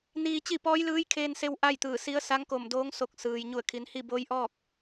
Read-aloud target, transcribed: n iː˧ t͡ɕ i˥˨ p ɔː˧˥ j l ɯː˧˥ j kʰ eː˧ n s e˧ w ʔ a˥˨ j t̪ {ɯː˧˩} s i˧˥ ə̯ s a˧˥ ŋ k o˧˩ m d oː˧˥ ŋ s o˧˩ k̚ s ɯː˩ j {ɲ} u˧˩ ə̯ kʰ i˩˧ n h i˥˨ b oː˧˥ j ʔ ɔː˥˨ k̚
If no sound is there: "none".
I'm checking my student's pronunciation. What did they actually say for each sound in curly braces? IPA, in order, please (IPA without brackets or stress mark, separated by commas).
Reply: ɯː˧˩, ɲ